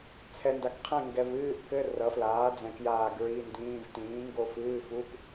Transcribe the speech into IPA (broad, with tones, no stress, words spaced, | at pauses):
t͡sʰɛ˨nda˨kqʰɛ̃˦˨ ŋɡɛ˨vɨː˧˥˧ʔkɘ˧˥˧ rʌ˩˥flaː˩˥d͡zɛ̃˨ kjaː˦˨ɡɹi˧˥˧ndĩː˧˥˧v tĩː˩˥ŋɡo˦˨fɨː˧˥˧fu˧˥˧k